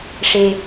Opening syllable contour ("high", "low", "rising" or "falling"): low